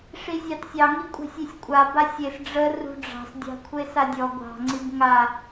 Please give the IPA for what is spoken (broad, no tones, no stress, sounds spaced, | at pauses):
ʂ i zʲ ɑ t sʲ ɑ ŋ i kʷʼ a̤ sʲ e sʲ kʷʼ a b a sʲ e s ɖ͡ʐ ə r ṳ ɖ͡ʐ ɑ̤ s dʲ ɑ̤ kʷʰ e s a dʲ ɔ ɡʷ ɑ̤ ŋ͡ǀ i b ŋ a